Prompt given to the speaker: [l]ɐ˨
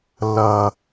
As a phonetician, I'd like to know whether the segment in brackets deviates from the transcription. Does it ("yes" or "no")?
no